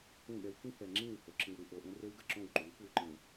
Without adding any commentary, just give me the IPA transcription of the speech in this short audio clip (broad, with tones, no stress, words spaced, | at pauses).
ũ˦˨ɠɛ˦w kĩ˦hɛ˨ŋ͡ǁĩ˦˨who˨ ǁĩ˨wɾu˨ ʔo˨ʔẽ˦re˦w ɡə˦˨ ǁõ˦˨wǃʉ˨˦w kwʉ˨ǃẽ˨